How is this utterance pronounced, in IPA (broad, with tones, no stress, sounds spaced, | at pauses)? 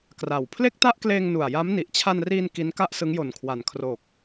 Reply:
k r a˨˩ w pʰ l e˥˩ k̚ t a˥˩ ʔ k l eː˧ ŋ n u˨˩ a̯ j a˦˥ m n i˨˩ ʔ t͡ɕʰ a˧ n r iː˧ n k i˦˥ n k a˥˩ ʔ s ɯ˦˥ ŋ j o˨˩ n kʰ w a˨˩ n kʰ r o˨˩ k̚